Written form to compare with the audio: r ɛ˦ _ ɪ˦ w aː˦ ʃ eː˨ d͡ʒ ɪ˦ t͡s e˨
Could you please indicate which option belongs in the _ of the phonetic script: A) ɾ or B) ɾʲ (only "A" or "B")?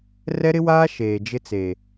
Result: A